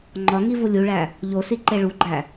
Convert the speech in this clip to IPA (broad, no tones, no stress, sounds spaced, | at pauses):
ŋ͡ǃ ɒ ŋ i v u lʲ u ɭ æ | ʎ o s i ǃ e ɭ u ɡ͡ǃ æ